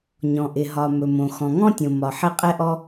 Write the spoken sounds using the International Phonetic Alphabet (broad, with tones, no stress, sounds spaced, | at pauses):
ɲ ɔ̃˩ ʔ ɪ˩ ɦ ɒ˩ m ɵ˩ m õ˩ x ɔ̃˩ ŋ ɔ̃˥ tʲ õ˩ m ɒ˩ ħ ɪ˥ qʼ ɛ˥ ʔ ɔ˥